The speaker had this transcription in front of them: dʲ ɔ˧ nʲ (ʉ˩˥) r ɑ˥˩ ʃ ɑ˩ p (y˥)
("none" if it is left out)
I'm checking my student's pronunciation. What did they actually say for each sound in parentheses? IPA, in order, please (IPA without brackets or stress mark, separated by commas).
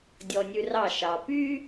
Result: ʉ˧, y˥